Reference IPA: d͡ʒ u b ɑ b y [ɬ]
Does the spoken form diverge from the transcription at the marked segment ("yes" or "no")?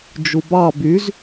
yes